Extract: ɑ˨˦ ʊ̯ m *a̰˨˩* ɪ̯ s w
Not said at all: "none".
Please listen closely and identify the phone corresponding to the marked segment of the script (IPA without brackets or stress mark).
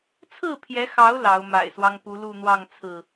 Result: a̰˨˩